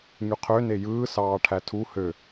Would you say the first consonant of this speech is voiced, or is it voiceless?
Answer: voiced